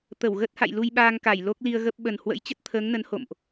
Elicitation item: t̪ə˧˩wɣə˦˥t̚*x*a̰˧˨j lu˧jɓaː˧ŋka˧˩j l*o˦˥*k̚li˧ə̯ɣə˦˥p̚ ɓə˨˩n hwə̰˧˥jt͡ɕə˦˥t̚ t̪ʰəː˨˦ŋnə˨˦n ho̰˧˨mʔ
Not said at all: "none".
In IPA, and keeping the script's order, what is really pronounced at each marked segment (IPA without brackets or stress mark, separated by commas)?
h, o˦˥